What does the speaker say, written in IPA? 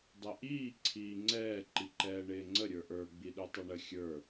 dˤ ɛ ʔ iː ǀʰ iː ŋ͡ǀ ɛː ǃ i ǃ ɛː ɳ ɪː ŋ͡ǀ ə ɾʲ ə˞ ʔ ə˞ ɡ͡b i ɗ u tˤ ʌ ɳ ə xʲ ə˞

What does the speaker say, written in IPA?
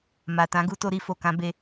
m a˨ t ã˨˦ ɡ u˧ t o˦ ɾ i˧ f o˨ k ã˧ b e˧

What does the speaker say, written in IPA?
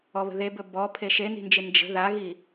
ɔ β ə̤ ð e b ɵ b ɔ pʰ e ʃ e n i̤ n d͡ʒ ɪ n d͡ʒ ə̤ ð a ɣ i

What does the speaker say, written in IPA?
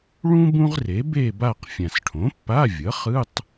ɭ ũ˥ b ũ˥ ʁ r e˩˥ b e˥˧ b a˥˧ q fʲ ã˨˩ s ʈʰ õ˩˥ pː a˧˥˧ vʲ ʌ˩˥ χ ɯ˧˥˧ tˤ

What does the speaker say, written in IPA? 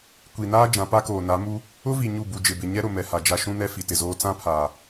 kʷ i˨ n aː˦ d͡ʒ ã˨˦ p a˦ k oː˨ n a˨˦ m u˦ | ʊ˦ v i˨ ɲ u˦˨ b u˨ d͡ʒ ɪ˨ b ɪ˨ ɲ ɛ˦ ɾ ʊ˨ m ɛ˨ h a˨ d͡ʒ a˦ ʃ ũ˦ n ɛ˦ f i˨ t ɪ˨ z oː˦ t͡s ã˦ pʰ aː˨

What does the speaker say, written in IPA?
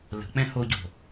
l ə̤ k͡p ɛ̃ h o ɟ o̤

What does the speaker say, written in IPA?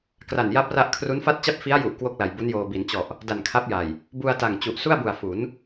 k r a˨˩ n j a˦˥ p̚ r a˦˥ ʔ kʰ r u˦˥ n f a˥˩ t̚ t͡ɕ a˥˩ p̚ f i˦˥ a̯ j u˨˩ ʔ k w o˥˩ k̚ l a˨˩ j b u˦˥ n j oː˧ b i˩˦ n t͡ɕ ɔ˨˩ ʔ | d a˨˩ n kʰ a˦˥ p̚ j a˨˩ j | b u˧ a̯ t a˨˩ ŋ t͡ɕ u˨˩ ʔ s u˥˩ a̯ b u˨˩ a̯ f u˩˦ n

